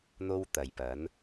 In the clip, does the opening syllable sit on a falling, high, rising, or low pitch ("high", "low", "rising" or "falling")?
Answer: high